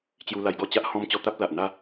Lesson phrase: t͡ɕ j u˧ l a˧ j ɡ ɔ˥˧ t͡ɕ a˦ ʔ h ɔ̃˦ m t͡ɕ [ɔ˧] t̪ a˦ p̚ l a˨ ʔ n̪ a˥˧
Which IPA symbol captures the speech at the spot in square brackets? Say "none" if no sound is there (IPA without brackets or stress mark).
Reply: ɔ˧